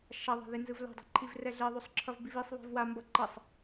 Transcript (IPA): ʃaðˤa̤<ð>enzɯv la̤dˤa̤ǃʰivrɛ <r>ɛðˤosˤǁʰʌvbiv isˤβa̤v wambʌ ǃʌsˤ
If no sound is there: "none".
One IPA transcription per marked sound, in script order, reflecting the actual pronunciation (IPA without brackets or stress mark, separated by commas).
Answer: ð, ɮ